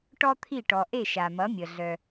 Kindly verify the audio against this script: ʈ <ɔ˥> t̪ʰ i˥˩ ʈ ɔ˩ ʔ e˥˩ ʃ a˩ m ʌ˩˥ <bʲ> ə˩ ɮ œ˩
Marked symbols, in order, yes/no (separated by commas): yes, no